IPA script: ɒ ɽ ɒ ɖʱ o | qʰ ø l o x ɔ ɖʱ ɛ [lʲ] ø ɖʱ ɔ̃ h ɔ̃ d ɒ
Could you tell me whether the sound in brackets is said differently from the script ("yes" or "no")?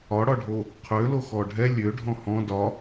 no